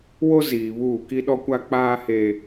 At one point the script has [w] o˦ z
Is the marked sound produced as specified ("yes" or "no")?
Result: yes